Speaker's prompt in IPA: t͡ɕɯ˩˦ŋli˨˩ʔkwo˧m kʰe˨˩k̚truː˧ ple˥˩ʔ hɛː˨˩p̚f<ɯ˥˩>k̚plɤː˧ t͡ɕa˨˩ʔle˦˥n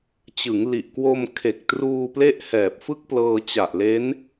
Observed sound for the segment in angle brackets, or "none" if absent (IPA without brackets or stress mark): ɯ˥˩